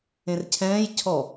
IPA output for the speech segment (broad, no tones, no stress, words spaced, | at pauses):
ẽrcʰɛ̃ːj cʰɔ